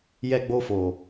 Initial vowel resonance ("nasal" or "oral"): oral